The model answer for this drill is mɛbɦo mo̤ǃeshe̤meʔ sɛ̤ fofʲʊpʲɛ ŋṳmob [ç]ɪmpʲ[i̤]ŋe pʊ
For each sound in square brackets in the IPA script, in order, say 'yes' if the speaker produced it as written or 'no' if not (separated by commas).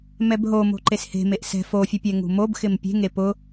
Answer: no, no